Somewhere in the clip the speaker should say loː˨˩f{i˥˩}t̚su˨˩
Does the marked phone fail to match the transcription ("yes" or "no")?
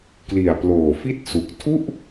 no